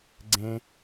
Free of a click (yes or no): no